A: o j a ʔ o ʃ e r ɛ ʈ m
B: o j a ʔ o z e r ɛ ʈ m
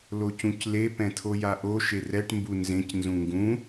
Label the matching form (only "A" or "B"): A